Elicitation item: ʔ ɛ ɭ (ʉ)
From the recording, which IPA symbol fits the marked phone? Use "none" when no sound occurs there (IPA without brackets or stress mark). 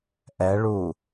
u